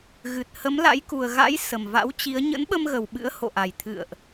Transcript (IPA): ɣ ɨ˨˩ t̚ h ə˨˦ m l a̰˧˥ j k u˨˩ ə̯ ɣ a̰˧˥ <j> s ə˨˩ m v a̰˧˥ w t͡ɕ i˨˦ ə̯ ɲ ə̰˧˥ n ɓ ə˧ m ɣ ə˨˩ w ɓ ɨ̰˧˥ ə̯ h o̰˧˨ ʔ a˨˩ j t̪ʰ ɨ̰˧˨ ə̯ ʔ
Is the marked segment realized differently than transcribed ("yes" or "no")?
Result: no